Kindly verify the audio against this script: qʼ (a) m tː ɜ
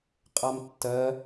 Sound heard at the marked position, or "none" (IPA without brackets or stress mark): a